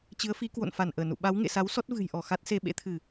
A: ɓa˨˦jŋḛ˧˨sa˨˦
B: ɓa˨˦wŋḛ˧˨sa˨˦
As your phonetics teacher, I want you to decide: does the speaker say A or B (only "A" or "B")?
B